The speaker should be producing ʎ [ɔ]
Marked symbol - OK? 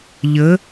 no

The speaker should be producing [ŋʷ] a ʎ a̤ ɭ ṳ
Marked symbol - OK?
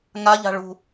no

